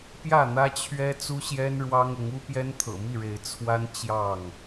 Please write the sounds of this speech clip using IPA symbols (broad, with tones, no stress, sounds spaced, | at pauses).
p j ä˥˨ n̪ ä˦ t͡ɕʰ ɥ ɛ˦ t͡s u˦ ɕ j ɛ˦ n ɻ w ɑ˦ ŋ ʊ˨˦ ŋ u˦ p j ɛ˦ n t̪ʰ ɤ̰˨˩ m i˥˨ ɻ e˨˦ ɪ̯ t͡sʰ w a˦ n t͡ɕ j ɑ˥˨ ŋ